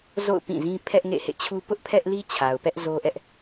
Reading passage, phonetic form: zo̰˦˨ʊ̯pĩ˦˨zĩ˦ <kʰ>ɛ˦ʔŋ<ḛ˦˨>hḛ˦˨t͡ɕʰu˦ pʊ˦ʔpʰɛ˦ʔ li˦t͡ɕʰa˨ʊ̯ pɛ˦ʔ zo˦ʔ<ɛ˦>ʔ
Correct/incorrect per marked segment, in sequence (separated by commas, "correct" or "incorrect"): incorrect, correct, correct